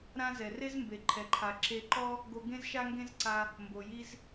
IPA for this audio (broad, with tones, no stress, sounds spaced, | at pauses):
ɾ ã˥ z ɛ˩ r e˥ z m b e˩ ǃʰ ɛ˩ ǃʰ a˩ ǁ e˧ ǃ ɔ˥ | ɡ o˧ ɡ ẽ˥ z ʃ a˥ ŋ ɡ ẽ˥ z ǀ a˧ | m b o˩ j i˧ z